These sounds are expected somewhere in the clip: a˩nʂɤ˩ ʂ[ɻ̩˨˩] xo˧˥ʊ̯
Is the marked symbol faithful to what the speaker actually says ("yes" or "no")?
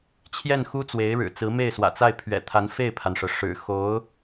yes